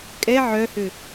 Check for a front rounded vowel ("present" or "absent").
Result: present